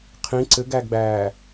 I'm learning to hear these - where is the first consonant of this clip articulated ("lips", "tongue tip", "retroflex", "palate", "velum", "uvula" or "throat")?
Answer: uvula